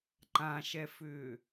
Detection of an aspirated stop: absent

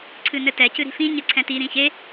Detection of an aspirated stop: present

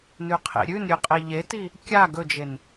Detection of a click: absent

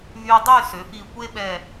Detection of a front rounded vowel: present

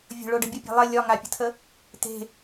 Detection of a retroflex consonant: present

